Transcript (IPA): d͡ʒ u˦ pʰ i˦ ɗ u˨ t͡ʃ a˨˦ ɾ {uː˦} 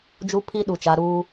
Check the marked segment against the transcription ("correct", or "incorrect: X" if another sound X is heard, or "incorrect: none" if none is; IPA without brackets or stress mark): correct